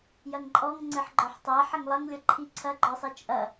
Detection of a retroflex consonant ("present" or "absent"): absent